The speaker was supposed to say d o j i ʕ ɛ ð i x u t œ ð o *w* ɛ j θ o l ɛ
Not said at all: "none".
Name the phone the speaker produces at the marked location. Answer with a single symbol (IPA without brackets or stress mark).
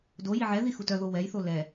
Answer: w